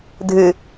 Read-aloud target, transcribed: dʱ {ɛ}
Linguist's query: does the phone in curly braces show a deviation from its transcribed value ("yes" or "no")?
yes